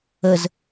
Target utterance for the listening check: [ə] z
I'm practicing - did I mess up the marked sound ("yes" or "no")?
no